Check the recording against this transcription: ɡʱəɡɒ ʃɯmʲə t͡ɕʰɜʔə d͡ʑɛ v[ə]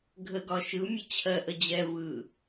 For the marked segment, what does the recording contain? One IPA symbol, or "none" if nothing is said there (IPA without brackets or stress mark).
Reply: ɯ